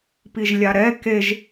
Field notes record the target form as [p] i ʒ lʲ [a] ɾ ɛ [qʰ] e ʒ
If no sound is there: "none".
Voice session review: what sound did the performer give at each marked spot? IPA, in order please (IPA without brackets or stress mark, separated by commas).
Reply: p, a, k